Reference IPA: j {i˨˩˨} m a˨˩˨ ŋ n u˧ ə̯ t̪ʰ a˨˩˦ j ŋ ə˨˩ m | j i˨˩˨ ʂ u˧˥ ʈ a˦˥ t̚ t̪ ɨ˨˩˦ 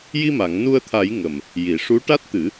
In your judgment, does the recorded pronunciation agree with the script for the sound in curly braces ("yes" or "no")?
no